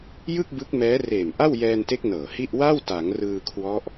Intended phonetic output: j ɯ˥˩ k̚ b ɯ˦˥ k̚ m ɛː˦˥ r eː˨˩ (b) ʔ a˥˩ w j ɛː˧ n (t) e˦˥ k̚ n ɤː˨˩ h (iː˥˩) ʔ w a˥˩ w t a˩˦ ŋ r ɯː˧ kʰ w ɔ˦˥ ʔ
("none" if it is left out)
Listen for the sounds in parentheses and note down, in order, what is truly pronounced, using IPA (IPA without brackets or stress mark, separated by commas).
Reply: m, t, i˥˩